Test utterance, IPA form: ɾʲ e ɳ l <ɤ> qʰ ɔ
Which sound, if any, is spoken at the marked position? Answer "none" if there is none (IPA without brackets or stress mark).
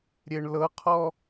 ɤ